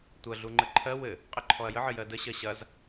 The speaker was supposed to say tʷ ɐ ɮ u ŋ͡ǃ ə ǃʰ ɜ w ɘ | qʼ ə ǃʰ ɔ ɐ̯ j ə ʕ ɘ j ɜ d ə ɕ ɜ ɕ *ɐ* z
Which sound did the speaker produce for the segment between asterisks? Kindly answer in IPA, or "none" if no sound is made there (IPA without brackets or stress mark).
ɐ